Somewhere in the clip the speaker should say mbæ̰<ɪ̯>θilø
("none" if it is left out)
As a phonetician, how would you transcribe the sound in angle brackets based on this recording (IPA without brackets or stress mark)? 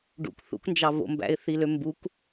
ɪ̯